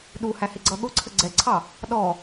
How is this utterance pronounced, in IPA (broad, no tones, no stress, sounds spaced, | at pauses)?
ɗ u h æ h ɪ ɡ͡ǀ ʌ ɠ ʊ ǀʰ ə ɡ͡ǀ ɛ ǀʰ ɑ | ɗ ɔ